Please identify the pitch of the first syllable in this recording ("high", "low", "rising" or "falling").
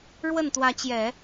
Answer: falling